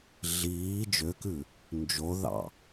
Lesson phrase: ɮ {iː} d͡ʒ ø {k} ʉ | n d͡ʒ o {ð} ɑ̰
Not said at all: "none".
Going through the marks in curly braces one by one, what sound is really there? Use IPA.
iː, k, ð

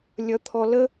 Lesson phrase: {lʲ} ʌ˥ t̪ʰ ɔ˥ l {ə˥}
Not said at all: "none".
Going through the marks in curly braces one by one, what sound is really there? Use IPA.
lʲ, ə˥

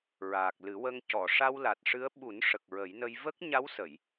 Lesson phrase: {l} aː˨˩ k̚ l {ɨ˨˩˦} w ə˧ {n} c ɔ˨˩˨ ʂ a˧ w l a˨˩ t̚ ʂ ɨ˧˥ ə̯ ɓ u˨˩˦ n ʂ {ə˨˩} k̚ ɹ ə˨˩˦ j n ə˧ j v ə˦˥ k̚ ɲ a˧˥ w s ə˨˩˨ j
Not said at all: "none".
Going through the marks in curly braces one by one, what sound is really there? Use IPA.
ɹ, ɨ˨˩˦, ŋ, ə˨˩

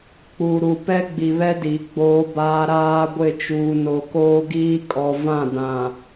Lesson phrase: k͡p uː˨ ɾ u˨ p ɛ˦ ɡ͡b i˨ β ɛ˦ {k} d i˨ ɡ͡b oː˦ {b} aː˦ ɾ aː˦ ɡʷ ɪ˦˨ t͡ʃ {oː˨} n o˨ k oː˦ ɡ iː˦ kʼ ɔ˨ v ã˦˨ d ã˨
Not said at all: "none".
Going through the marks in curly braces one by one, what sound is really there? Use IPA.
none, b, uː˨

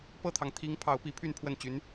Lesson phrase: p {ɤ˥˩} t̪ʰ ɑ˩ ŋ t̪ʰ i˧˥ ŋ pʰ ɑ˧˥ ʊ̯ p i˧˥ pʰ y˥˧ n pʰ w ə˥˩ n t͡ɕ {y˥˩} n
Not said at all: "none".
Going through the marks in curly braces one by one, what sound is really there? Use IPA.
ɤ˥˩, y˧˥

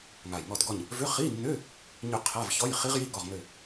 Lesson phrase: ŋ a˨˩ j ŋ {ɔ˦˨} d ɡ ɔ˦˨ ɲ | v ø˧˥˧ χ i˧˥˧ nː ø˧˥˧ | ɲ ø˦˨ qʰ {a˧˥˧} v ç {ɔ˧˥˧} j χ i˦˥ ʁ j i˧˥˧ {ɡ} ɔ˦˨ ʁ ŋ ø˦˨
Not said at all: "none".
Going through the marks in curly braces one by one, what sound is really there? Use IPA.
ɔ˦˨, a˧˥˧, ɔ˧˥˧, ɡ

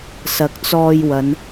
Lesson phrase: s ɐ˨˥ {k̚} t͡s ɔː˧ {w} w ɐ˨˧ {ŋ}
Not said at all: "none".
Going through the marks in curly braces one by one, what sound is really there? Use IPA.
k̚, j, n

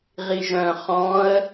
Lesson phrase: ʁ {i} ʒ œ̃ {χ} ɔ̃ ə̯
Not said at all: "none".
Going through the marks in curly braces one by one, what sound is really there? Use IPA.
i, χ

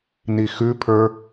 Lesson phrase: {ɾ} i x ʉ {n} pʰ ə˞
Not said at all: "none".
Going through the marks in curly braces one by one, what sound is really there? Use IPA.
n, none

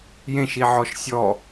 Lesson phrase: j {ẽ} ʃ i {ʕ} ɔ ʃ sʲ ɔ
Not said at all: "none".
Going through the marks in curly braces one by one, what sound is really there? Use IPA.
ẽ, ʕ

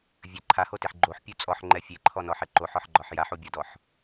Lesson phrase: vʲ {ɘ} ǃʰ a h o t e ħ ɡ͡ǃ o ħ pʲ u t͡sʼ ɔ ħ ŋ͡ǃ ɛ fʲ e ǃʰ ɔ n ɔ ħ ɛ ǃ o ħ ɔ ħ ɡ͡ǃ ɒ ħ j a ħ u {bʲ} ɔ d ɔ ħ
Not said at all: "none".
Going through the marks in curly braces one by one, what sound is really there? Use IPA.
ɘ, bʲ

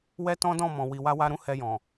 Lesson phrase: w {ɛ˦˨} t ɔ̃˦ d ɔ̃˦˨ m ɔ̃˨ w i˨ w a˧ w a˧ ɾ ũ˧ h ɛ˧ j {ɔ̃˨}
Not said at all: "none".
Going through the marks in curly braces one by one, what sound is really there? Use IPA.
ɛ˦, ɔ̃˨

